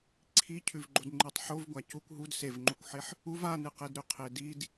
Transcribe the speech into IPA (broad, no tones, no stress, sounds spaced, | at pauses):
ǀʰ i cʰ ʉ v ɡ͡ǃ o d ŋ͡ǃ ɨ tˤ ħ o v ɡʷ a c u kʷ ɦ u d s e v ŋ͡ǃ u kʷ ħ e ħ | u v a n ɨ q e d ɾ ʉ qʰ e d i d